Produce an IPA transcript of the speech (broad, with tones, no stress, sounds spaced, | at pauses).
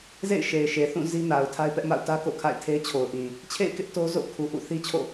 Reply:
z ḛ˦˨ ɪ̯ ʃ e˨ ɪ̯ ʃ e˨ θ ũ˦˨ z i˦ n a˨ ʊ̯ tʰ a˦ ɪ̯ p ɛ˦ ʔ m a̰˦˨ ʊ̯ t ä˦ k o̰˦˨ kʰ a̰˦˨ ɪ̯ tʰ e˦ ɪ̯ t͡ɕʰ o˨ ʊ̯ ʔ ĩ˨ | t͡ɕʰ ḛ˦˨ ɪ̯ k ɪ˦ ʔ t o˦ z o̰˦˨ kʰ u˨ ʔ ṵ˦˨ θ i˦ t͡ɕʰ o̰˦˨